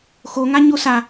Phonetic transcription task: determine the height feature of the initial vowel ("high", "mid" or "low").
mid